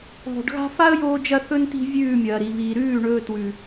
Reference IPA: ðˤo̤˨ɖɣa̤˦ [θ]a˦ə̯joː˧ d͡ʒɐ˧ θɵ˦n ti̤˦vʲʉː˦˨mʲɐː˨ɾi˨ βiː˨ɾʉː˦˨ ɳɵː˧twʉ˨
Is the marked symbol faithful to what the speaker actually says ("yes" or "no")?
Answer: no